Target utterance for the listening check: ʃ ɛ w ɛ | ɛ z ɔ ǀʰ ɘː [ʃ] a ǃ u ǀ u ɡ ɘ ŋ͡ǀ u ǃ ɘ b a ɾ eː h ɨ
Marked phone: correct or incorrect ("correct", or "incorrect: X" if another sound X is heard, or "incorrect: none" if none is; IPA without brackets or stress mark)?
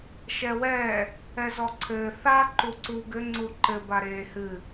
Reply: incorrect: θ